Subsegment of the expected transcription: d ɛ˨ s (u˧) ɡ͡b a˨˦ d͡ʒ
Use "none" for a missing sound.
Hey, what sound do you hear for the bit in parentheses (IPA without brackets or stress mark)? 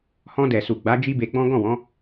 u˨